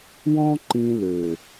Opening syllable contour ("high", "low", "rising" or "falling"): high